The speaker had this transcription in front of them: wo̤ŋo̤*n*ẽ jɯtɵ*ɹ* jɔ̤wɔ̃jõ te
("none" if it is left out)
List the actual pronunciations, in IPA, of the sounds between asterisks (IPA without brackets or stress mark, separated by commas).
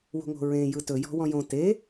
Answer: ɹ, none